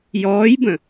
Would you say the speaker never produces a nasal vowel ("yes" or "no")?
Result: no